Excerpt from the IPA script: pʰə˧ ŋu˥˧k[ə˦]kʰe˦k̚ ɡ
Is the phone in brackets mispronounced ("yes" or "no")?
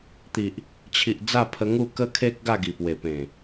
no